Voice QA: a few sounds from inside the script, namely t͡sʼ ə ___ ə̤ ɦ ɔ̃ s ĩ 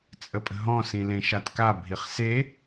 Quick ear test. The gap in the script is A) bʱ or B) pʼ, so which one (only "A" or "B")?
B